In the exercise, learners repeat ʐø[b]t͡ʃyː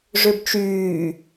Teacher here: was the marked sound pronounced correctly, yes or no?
yes